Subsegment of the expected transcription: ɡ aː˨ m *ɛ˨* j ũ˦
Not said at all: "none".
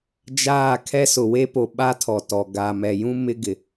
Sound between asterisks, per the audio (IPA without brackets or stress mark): ɛ˨